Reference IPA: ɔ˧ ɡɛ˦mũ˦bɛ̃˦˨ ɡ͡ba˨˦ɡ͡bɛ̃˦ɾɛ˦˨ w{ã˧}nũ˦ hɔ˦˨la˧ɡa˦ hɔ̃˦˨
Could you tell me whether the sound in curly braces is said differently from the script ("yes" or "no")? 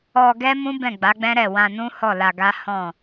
no